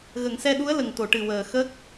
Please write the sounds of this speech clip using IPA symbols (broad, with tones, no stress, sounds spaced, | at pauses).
ɣ ə˨˩˨ ŋ s ɛ˧ ɗ u˧˥ ə̯ l ə˨˩ ŋ t̪ o˨˩˨ ʈ ɨ˨˩ w əː˨˩ x ə˦˥ k̚